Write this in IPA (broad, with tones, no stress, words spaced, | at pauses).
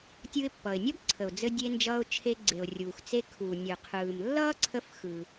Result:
tʲɯ˧ɪ̯pːʌ˩ɪ̯nʲʌ˥b ǀʰə˩ʊ̯d͡zɘ˧dʲe˧nd͡ʒʌː˧ʊ̯ t͡ʃʰe˧ɡ͡ǀe˩ʊ̯ rʲuː˩x t͡se˧kʰuː˩ nʲɯ˩qʰɯː˩m lːʌː˥ǀʰə˧f xɯ˩